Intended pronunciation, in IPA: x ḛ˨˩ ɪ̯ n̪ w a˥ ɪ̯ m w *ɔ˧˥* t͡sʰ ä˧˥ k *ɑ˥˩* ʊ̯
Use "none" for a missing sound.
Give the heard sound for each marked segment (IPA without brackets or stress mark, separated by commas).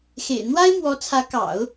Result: ɔ˧˥, ɑ̰˨˩˦